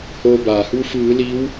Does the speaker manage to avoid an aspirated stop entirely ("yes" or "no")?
yes